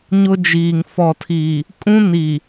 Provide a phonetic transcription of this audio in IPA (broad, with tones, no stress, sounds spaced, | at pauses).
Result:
ɲ ʊ˦ d͡ʒ iː˨ ŋ f ɔ˨ tʰ iː˨ | kʼ ũ˦ n iː˨